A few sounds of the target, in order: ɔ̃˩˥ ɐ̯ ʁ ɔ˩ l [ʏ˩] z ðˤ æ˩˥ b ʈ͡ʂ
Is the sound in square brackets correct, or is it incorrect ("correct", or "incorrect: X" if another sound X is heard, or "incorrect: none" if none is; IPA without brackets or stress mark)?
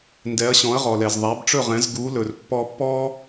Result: incorrect: ɛ˩